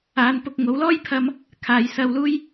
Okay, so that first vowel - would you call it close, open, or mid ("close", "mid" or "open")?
open